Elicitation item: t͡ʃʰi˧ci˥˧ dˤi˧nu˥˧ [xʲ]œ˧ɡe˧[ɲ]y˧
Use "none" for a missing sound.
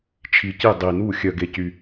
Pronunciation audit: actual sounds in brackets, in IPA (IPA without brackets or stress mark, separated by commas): xʲ, c